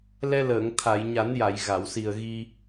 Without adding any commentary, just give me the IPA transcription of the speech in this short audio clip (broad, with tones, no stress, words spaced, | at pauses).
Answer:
lɛ˧ləː˨˩˨ŋ t̪ʰa˨˩˨jɲa˨˩˦nja˨˩˨j ɣa˨˩˨wsi˨˩ə̯ɣi˧